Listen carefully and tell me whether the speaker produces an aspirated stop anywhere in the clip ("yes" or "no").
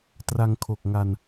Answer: yes